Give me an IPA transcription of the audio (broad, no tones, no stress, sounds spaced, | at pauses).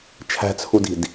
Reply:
t͡ʃʰ æ̤ t͡sʰ u d i̤ d